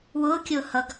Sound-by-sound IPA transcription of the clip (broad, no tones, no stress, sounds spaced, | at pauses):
w ʊː kʲ ʊː h ʌ ɡ